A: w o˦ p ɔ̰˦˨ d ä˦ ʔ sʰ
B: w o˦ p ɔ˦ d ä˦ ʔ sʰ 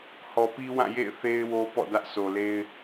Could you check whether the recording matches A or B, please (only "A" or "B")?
A